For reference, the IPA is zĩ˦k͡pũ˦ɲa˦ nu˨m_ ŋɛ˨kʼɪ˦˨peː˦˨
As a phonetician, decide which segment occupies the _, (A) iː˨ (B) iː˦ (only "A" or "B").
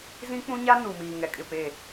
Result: A